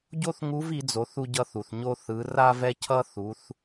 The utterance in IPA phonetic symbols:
ɟ o˥ θ ŋ u˧˥ v i˩˧ d͡z o˩˧ θ u˧ ɟ ʌ˧ θ u˩ θ ɲ o˧ θ ɯ˩˧ r a˧ v ɛ˧ cʰ ʌ˧ θ u˩˧ θ

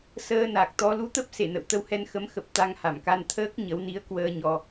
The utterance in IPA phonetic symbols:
s əː˧ n a˨˩ k̚ t̪ ɔ˧ l u˧ t̪ ə˦˥ p̚ s e˧˩ n ə̰˧˨ w t̪ ə˧ w h ɛ˧ n x ə˨˦ m x ə˨˩ p̚ t̪ a˧ ŋ h a˧˩ m k a˧ n t̪ʰ əː˦˥ k̚ ɲ ə˨˦ w n i˨˦ ə̯ k w əː˧ ɲ ɔ˧

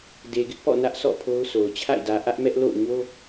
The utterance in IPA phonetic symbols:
d e˨ ɡ ɪ˦ ʔ p ɔ̰˦˨ n ä˦ ʔ sʰ ɔ̰˦˨ pʰ o˦ ʊ̯ s o˨ ʊ̯ t͡ɕʰ a̰˦˨ ɪ̯ d ä˨ ʔ ä˦ ʔ m ɛ˦ ʔ l o̰˦˨ ʊ̯ ɲ o˦

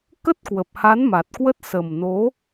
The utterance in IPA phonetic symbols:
k ə˦˥ t̚ k w ə˨˩ p̚ h a˨˦ n m a˨˩ t̚ k w ə˦˥ t̚ s ə˨˩ m n o˨˦

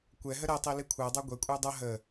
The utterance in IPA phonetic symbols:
kʷ ɛ ɦ ə ɾ ɛ tˤ i l i kʷʰ ɜ dˤ ɑ ɡʷ ɛ kʷʼ æ dˤ ʌ ɦ ə

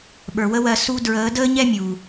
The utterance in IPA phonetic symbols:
ɓ ə˞˨ w ə˦ w ɜ˧ s u˧ d ɹ əː˨˦ d əː˦ ɲ ɛ˦ mʲ u˨

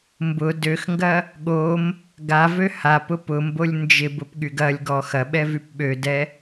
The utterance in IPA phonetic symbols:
m b ʊ d ø x ŋ ɡ ɐ | ɠ o m | ɡ a v ø h a p ʊ p ʊ m b o lʲ n d͡ʒ ɪ b ʊ p ɠ y ɡ ɐ lʲ ɡ ɔ x ɐ ɓ ɛ v y p ɓ ø d ɛ

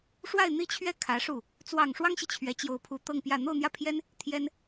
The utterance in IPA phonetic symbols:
ʂ w a˥˧ ɪ̯ n̪ i˥˧ t͡ɕʰ ɥ ɛ˥˩ kʰ ä˧˥ ʂ u˥˩ | t͡s w ɑ˨˩ ŋ ʂ w ɑ˥ ŋ ɕ i˨ t͡ɕʰ ɥ ɛ˧˥ t͡ɕ j o˧˥ ʊ̯ pʰ u˧˥ t̪ ɤ˥˧ ŋ p j ä˥˧ n̪ o˥˧ ʊ̯ n̪ j ä˥˩ pʰ j ɛ˥ n | t̪ʰ j ɛ˥ n

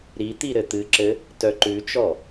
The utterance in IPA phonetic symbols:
ɾ i t̪ i ɾ ɘ t̪ ɨ ǁ ɘ | t œ ǃ ʉ t͡ʃ ɔ

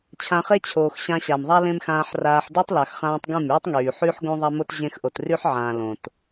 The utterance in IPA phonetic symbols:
t͡ɕʰ ã˧ χ e˦ t͡ɕʰ oː˨ x ɕ ã˧ ɕ a˨ m ðˤ a˦ l ẽ˦ m x ãː˧ ħ r aː˧ ħ d o˦ tˤ l a˨ x χ ãː˧ tˤ ɡ ẽ˦˨ m yː˦ tˤ ŋ yː˨ ħ y˦ ħ ɡ õ˦ ðˤ a˦ m o˦ t ʑ ẽ˦ x ʔ o˧ t r y˦ ħ ʕ ãː˨ l õ˨ t

